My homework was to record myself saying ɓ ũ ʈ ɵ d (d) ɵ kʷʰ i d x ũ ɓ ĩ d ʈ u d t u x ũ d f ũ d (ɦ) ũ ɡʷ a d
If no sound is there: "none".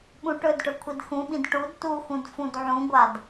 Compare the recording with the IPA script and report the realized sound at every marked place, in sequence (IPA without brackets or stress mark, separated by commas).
ʈ, ʕ